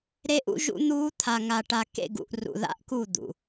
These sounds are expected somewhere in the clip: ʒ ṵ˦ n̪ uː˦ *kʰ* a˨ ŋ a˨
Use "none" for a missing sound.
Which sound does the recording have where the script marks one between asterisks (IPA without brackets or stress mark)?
t̪ʰ